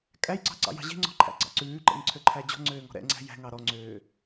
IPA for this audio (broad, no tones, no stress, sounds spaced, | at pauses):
kʼ æ j ǀ ɑ̤ ǀ ɑ̰ j ɑ̤ ʑ e̤ ŋ͡ǀ ɔ̤ ǃʰ æ̰ ɡ͡ǀ ɑ̰ ǀ ʉː ǃ ḛ ŋ ǀʰ ø ǃʰ æ d͡ʑ ɔ̤ ŋ͡ǀ øː ŋ ɔ̤ ɾ ɛ̰ ŋ͡ǀ æ̤ j æ̤ ŋ ɑ ɾ ɔ ŋ͡ǀ øː